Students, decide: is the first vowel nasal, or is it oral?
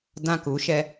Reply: nasal